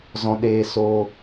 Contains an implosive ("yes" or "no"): yes